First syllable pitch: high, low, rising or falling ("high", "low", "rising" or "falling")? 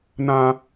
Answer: high